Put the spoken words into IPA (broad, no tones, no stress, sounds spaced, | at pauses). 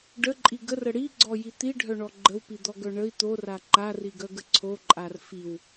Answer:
ɖ ə ǃʼ i ɡ ə r ə ɽ i ɡ͡ǀ ɔ j i t̪ i ɖʱ œ ɳ ɔ ɡ͡ǃ ə w p i d̪ ɔ ɡ œ ɳ ə i̯ t̪ o r a ǃ a r i ɡ œ ɡ ə ǀʰ o ǃʼ a r f i w